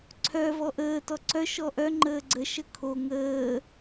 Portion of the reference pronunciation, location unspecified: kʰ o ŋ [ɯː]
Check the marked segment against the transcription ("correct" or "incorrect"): incorrect